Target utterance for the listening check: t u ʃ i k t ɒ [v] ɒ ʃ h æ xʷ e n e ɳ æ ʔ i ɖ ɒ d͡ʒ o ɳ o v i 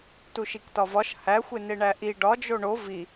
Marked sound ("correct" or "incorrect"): correct